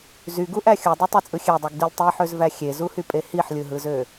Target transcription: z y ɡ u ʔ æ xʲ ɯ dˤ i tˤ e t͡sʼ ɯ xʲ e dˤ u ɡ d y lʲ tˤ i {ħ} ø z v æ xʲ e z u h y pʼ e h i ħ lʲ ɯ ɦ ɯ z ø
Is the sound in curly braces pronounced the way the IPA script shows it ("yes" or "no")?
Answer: yes